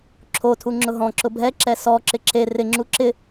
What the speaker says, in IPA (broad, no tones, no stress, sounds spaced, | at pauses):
ǁʰ o tʰ u ŋ͡ǁ ʊ ɦ ɔ̃ ǁ ʊ bʱ ɛ ǁ ɛ s ɔ ǁ ɪ ǁ e r ɪ ŋ͡ǁ u ǁ ɪ